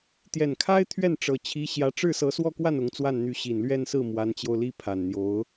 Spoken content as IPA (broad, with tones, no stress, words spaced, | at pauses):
t̪jɛ˨˩nkʰa˥ɪ̯ t̪ʰɥɛ˥˩n ʈ͡ʂɤ˨˩ t͡ɕʰi˧˥ɕjä˧˥ ʈ͡ʂɻ̩˥˩sɤ˧˥ swɔ˥˧kwa˥˩n ʊ˧˥ŋt͡swa˥˩nn̪y˧˥ ɕi˨˩nlɥɛ˥˧nsɹ̩˥˩ mwa˧˥nt͡ɕjo˧ʊ̯li˥ pʰa˨˩nn̪jo˧˥ʊ̯